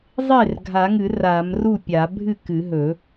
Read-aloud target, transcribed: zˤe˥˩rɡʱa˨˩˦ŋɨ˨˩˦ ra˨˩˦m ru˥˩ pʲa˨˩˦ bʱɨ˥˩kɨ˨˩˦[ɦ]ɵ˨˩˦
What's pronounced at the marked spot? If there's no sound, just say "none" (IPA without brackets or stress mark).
ɦ